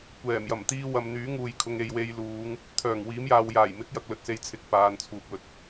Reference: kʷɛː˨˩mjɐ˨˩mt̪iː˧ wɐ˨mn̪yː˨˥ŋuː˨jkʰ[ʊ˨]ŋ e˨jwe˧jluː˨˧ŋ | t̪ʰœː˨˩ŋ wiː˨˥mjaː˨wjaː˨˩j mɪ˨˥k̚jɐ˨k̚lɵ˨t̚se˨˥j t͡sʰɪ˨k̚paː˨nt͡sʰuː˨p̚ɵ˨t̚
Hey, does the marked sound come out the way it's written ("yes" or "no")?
yes